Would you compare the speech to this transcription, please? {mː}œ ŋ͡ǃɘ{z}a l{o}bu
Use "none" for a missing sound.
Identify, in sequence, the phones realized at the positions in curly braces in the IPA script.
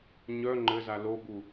ɲ, z, o

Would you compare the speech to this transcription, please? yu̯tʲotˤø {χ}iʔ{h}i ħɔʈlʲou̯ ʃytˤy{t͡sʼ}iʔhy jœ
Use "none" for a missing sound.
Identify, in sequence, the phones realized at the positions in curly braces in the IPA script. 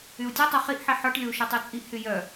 χ, ħ, t͡sʼ

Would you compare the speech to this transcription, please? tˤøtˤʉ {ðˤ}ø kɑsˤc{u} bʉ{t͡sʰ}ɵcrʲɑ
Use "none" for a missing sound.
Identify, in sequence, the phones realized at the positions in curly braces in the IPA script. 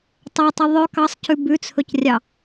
ðˤ, ʉ, t͡sʰ

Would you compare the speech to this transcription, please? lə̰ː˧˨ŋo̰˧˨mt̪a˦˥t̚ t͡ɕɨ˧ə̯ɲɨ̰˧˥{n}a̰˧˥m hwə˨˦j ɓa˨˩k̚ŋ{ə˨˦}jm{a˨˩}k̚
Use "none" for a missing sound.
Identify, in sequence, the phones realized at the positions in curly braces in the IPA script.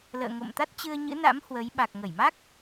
n, ə˧˩, a˦˥

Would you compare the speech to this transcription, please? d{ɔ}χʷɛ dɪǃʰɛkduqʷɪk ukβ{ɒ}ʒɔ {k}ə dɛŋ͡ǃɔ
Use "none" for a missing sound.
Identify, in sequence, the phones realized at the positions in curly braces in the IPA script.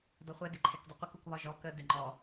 ɔ, ɒ, k

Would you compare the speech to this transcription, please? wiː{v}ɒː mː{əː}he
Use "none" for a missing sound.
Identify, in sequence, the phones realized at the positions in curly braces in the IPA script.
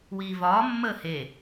v, əː

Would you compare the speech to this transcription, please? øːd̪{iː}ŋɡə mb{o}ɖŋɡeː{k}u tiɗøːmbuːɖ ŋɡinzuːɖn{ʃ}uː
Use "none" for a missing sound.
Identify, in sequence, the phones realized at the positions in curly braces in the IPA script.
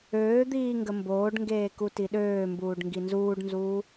iː, oː, k, z

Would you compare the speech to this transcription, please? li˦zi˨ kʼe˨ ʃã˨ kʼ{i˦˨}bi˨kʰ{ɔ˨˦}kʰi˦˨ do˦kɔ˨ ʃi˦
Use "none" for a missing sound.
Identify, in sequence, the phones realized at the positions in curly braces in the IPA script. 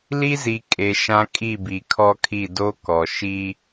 i˦˨, ɔ˦

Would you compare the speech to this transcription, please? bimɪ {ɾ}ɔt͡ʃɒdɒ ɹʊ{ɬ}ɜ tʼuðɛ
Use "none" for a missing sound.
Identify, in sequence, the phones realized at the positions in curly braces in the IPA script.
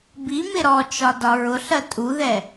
ɾ, ɬ

